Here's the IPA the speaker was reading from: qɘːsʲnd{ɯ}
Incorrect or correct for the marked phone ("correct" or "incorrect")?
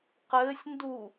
incorrect